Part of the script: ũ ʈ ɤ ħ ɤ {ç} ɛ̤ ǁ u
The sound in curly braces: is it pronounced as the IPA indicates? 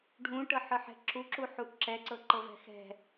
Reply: no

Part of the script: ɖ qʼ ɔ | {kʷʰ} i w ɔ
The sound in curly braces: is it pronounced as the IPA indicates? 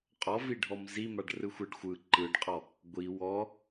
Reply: no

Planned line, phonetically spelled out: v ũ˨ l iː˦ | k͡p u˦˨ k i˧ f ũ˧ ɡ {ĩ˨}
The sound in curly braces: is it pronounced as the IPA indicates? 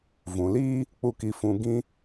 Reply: no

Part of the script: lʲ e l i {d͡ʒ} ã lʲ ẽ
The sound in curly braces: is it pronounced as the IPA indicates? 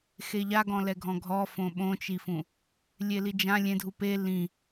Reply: yes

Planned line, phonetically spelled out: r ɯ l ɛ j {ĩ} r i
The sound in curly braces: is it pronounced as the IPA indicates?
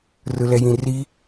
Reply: yes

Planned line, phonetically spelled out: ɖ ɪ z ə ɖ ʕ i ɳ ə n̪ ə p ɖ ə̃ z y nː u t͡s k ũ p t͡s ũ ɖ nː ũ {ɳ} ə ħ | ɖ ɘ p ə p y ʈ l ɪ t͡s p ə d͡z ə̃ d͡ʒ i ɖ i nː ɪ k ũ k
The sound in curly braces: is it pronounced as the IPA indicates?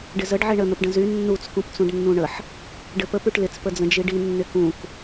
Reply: yes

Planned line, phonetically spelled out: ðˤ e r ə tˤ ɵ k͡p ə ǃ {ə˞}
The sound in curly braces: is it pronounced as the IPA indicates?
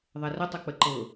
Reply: no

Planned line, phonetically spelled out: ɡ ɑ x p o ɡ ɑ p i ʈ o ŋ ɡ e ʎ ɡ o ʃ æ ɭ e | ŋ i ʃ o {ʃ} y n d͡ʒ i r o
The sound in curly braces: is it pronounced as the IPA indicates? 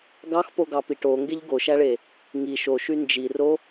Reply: yes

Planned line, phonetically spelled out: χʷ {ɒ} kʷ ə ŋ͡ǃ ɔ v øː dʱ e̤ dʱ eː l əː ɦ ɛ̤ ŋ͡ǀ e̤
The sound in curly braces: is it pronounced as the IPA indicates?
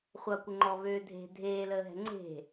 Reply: no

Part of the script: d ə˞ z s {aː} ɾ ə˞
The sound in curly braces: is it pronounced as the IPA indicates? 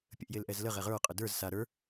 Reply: no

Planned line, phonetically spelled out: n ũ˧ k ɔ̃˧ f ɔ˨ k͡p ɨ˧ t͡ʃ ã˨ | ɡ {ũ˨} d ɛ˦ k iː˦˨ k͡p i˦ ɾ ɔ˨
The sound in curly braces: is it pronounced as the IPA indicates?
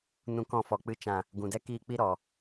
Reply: yes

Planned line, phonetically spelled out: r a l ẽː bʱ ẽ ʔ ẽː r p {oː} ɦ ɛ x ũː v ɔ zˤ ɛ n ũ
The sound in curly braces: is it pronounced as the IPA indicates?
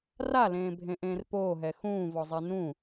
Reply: yes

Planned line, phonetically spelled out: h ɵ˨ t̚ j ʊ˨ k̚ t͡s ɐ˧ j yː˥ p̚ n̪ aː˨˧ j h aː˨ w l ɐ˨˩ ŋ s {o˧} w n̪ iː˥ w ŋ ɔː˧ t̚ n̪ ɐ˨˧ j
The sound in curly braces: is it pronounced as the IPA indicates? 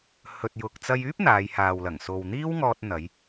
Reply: no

